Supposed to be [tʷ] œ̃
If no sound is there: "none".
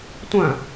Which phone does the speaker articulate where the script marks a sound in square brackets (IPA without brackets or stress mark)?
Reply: tʷ